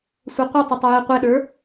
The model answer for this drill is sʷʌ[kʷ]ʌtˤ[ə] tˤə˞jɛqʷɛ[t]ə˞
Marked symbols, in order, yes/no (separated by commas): no, yes, no